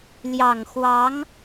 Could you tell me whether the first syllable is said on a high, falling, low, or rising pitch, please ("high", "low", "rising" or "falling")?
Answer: low